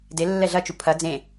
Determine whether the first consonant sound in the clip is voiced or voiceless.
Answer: voiced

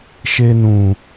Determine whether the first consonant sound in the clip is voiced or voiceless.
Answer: voiceless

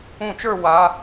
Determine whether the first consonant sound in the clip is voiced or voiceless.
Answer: voiceless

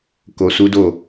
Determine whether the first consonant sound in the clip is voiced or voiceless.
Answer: voiceless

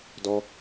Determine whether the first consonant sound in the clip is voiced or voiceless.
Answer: voiced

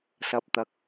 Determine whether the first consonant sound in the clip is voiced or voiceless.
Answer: voiceless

